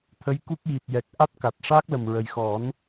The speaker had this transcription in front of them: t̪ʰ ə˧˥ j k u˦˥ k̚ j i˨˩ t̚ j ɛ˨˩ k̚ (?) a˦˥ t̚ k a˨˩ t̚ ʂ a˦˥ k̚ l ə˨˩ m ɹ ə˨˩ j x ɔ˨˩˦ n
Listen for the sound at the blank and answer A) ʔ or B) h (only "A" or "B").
A